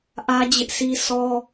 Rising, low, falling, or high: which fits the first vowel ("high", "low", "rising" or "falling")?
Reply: high